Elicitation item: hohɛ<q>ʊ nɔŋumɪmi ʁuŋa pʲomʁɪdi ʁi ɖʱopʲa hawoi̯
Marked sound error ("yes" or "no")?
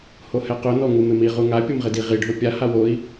no